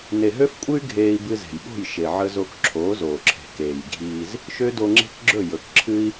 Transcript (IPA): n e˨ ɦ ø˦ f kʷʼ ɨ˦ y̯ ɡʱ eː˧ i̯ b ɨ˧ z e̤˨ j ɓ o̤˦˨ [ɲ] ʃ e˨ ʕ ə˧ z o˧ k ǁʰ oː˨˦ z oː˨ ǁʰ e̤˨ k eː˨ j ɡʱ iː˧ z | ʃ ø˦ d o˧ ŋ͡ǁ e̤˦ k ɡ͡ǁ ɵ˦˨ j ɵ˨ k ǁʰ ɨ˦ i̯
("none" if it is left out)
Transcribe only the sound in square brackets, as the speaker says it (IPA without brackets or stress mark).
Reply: j